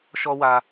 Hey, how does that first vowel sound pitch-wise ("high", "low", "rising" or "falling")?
high